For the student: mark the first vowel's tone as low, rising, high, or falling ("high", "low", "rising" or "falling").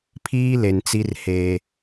high